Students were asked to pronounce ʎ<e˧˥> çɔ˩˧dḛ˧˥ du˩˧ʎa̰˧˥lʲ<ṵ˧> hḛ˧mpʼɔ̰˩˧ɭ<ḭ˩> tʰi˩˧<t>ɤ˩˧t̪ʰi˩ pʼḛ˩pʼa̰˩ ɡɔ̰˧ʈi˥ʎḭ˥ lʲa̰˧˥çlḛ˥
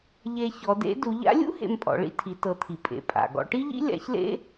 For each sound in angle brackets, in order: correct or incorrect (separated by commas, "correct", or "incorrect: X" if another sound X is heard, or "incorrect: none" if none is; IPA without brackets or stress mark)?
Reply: incorrect: e˧, incorrect: ṵ˥, incorrect: ḭ˧, correct